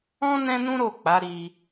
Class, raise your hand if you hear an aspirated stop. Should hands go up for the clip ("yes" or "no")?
no